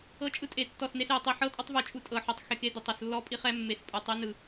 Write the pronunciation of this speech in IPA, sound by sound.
ɤ˧˥ t͡ʃʼ ɯ˧ tʼ e˧˩ tː ɔ˧˩ s n e˧ s e˧˩ tˤ i˧˩ ħ ɤ˧˥ tʼ ɯ˧ tˤ v ɯ˧˩ t͡ʃʼ u˧ tʼ ɤ˧˩ ħ o˧˩ tˤ x e˧ k e˧˥ d ɯ˧˩ tˤ u˧˩ s lː ɔ˧˥ pʼ i˧ χ ɛ˧˥ mː e˧ s pʼ u˧˩ tˤ ɯ˧˥ n ɯ˧˩

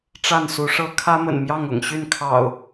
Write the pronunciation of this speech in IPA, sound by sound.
ʈ͡ʂ a˥˨ n s u˨˦ ʂ ɤ˦ kʰ ä˦ m ə̰˨˩ n m j ɑ˥˨ ŋ ʊ̰˨˩ ŋ ɕ y˥˨ n kʰ ɑ̰˨˩ ʊ̯

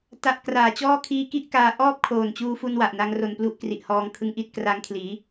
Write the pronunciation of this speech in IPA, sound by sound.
t a˦˥ ʔ k r aː˨˩ t͡ɕ ɔː˥˩ kʰ iː˦˥ k i˥˩ ʔ k aː˧ ʔ ɔː˥˩ p̚ kʰ oː˨˩ n t͡ɕ uː˧ f u˧ n w a˨˩ ʔ n a˧ ŋ r o˧ n p l u˦˥ ʔ k r i˨˩ ʔ h ɔː˧ ŋ kʰ ɯ˧ ŋ ʔ i˥˩ t̚ k r a˧ ŋ kʰ l iː˩˦

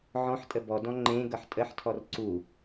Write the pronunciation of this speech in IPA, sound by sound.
ʕ ɔ̃ ħ tʼ ə b ɔ d ɔ̃ ŋ͡ǃ ẽ ɡ ʌ ħ tʼ ə ħ tʰ ɔ r ǀ u

